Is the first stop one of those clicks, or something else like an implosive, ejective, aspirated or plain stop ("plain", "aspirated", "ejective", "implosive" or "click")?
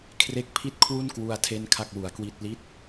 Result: aspirated